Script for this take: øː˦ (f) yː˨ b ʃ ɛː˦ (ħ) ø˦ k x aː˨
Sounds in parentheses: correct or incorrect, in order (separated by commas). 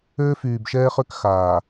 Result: correct, incorrect